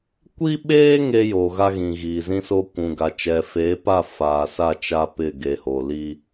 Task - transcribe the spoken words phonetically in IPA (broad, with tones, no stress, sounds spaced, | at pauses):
kʷ i˦ ɓ eː˦ ŋ eː˦ j oː˨ ɣ a˦ ɣ ĩ˨ ɣ iː˨ z ĩ˦ s o˦ kʷ ũ˨ ɡ a˨ t͡ʃ ɛ˨ f eː˨˦ p a˦˨ f aː˨ s a˦˨ t͡ʃ a˦ p ɪ˦˨ ɡ e˨ h o˨ l i˦